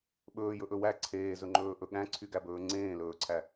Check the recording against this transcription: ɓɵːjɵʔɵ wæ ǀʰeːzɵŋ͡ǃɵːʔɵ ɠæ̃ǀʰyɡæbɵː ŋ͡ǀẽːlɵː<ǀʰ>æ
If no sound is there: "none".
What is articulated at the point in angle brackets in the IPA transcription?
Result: ǀʰ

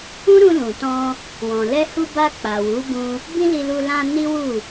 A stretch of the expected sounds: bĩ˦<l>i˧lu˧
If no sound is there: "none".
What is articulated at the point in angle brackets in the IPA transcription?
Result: l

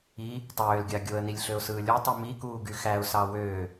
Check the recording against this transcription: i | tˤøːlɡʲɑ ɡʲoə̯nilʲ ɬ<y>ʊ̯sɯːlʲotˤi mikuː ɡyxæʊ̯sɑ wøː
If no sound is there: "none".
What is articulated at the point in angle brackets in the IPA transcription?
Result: ø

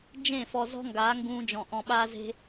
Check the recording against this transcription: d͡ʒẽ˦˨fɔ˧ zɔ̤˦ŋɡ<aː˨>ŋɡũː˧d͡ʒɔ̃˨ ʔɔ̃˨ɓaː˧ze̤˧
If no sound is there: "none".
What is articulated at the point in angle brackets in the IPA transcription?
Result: aː˨˦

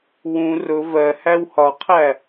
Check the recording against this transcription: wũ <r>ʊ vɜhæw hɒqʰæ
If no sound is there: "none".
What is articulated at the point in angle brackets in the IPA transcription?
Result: r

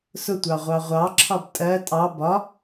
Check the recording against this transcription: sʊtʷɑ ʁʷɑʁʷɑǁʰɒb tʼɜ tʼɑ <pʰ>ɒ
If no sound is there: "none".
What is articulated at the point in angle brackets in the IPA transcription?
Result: b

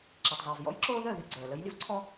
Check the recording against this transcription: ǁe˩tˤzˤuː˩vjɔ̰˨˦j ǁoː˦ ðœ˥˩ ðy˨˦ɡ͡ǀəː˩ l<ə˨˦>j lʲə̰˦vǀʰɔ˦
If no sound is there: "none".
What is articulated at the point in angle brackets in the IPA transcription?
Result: ə˨˦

